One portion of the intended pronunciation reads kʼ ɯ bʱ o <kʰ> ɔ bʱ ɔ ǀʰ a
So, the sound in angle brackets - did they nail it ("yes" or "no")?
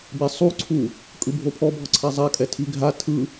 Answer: no